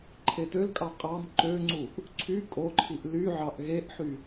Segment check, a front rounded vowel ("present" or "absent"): present